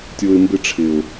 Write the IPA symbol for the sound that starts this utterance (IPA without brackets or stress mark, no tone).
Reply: tʲ